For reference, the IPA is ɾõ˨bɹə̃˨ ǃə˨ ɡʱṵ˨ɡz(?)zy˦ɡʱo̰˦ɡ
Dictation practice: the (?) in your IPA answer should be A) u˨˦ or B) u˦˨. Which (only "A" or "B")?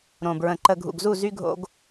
B